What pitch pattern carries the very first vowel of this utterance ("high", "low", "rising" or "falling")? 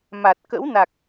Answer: low